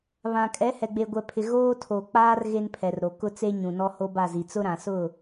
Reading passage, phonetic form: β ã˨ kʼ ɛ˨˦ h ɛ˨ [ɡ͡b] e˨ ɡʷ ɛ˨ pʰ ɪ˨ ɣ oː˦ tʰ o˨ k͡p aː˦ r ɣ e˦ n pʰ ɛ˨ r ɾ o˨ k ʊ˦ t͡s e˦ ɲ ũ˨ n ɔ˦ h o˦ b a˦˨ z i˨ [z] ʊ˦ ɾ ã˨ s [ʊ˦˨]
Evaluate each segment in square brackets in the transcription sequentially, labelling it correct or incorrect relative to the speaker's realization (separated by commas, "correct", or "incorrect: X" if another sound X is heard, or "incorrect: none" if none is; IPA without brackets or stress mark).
correct, incorrect: t͡s, correct